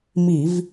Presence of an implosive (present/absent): absent